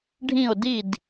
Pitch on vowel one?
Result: falling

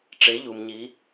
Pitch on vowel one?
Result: rising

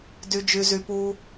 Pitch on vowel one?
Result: low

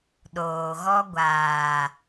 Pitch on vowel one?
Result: low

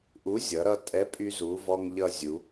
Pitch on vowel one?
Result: rising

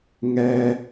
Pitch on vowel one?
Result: low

